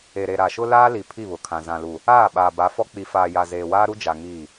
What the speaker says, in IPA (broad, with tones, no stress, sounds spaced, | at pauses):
e˨ ɾ e˨ ɾ a˨ ʃ ʊ˦ l aː˦ l i˨ pʰ i˦˨ β ʊ˨ kʰ ã˨ z ã˨ l u˨ | aː˦˨ ɓ aː˨ b a˨˦ f ɔ˦ k͡p i˨ f aː˨ j a˨ z eː˨ w aː˦ ɾ u˦ d͡ʒ a˨ ŋ iː˦˨